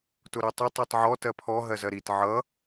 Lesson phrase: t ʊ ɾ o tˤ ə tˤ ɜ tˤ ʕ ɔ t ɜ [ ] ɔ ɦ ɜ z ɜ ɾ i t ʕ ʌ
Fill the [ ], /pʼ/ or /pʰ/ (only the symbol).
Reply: pʰ